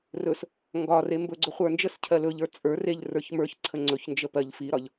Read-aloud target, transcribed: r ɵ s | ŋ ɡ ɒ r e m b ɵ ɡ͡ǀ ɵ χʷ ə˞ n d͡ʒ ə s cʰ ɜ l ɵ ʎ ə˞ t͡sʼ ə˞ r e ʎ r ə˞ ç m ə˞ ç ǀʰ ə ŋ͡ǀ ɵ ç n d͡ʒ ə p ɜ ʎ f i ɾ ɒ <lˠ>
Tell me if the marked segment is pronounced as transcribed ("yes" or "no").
no